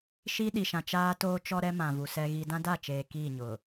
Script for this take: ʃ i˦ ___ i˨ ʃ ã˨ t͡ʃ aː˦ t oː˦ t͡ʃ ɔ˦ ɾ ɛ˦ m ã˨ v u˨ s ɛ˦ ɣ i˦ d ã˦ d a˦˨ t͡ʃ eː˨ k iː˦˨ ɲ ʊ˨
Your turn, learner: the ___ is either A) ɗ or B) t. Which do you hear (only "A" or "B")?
A